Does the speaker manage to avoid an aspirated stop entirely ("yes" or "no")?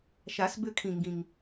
no